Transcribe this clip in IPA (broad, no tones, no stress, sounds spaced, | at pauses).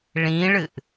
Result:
ɭ ĩ ɭ ɨ ʔ